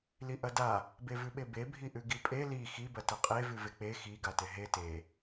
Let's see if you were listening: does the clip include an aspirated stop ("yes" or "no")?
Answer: no